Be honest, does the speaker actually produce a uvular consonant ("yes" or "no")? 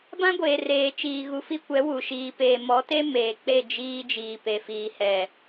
no